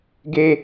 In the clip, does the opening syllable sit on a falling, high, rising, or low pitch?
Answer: high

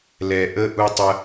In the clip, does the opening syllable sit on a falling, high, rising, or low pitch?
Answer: low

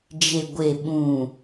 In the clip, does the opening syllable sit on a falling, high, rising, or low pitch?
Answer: low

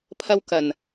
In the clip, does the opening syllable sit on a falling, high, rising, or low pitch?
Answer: high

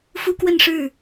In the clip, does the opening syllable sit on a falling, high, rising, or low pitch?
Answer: high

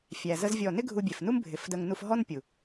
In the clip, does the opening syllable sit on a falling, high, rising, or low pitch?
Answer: low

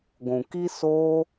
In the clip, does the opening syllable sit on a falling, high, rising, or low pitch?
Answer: low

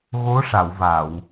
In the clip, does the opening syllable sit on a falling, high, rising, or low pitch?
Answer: rising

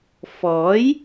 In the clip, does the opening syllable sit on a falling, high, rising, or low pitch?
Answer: rising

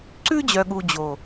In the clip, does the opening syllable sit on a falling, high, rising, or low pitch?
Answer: high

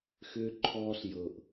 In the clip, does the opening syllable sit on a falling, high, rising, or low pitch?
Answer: high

